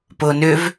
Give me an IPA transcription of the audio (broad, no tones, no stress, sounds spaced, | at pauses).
p ʊː n ʏ v